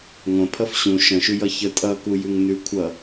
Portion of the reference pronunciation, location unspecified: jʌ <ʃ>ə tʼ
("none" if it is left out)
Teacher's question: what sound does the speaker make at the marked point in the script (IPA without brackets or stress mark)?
ç